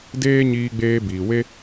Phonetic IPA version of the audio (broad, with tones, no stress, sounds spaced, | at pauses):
d eː˦ ɲ iː˧ ɡ͡b eː˧ b iː˨ w e˦